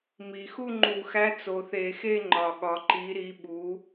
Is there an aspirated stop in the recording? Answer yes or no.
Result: no